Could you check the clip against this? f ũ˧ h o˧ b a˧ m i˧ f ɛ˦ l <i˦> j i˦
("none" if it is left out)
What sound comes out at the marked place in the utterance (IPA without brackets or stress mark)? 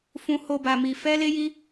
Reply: e˦